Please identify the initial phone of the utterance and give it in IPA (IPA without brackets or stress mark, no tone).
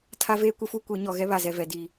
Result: tʰ